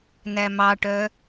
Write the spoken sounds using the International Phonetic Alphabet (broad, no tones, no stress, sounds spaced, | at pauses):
n æ m ɑ ʈ œ